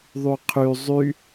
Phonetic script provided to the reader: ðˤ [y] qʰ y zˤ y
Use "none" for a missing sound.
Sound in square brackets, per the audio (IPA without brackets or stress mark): y